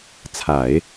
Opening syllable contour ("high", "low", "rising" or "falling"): low